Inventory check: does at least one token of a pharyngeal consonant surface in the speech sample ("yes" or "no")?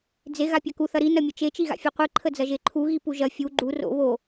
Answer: no